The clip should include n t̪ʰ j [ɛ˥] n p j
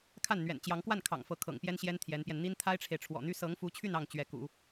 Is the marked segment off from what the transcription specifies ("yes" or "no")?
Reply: yes